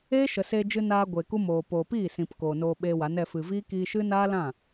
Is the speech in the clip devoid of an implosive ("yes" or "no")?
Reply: no